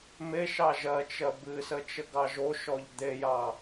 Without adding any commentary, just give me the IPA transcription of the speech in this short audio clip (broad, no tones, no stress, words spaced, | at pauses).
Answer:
meʃɑ ʒɜt͡ʃɜ bɨsə t͡ʃəɡɑʒoʃɔʎ d̪ejɑ